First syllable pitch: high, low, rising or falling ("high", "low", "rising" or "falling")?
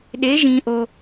rising